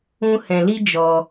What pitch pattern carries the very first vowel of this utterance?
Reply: high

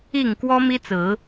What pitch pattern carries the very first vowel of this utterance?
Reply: low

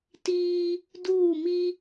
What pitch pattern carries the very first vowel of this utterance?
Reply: high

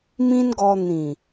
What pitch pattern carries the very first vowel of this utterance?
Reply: high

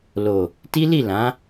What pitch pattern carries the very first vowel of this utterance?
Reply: low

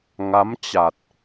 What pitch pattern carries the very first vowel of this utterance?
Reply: rising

